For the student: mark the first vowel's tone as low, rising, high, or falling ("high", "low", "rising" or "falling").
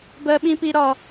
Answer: high